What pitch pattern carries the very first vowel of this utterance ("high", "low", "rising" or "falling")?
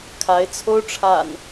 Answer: rising